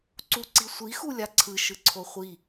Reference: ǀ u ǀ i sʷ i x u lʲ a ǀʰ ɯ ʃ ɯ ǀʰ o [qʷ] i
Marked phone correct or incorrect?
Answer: incorrect